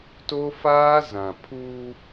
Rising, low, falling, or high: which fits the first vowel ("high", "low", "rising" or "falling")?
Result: high